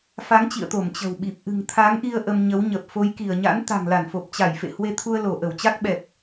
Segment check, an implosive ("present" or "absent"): present